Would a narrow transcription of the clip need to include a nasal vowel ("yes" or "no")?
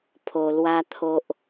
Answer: no